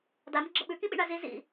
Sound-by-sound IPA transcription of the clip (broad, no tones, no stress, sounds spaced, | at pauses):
d a m ə ɡ͡ǁ ə ɓ ʉ k ĩ ɓ ḭ ɳ a z i z ḭ